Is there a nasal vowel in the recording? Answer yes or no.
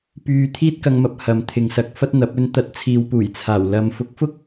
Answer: no